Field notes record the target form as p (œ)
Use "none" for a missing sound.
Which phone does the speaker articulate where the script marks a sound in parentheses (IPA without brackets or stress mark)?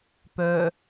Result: œ